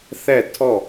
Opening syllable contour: falling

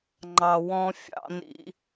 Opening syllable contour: low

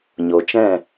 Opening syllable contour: low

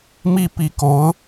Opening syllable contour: falling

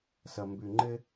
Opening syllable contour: low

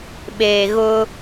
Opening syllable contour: low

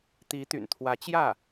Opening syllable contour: rising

